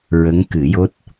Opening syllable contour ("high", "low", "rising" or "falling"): rising